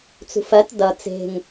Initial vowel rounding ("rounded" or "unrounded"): rounded